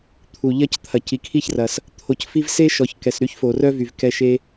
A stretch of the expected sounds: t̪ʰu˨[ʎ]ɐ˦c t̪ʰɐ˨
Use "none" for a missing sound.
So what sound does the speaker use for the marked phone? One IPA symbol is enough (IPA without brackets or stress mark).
ʎ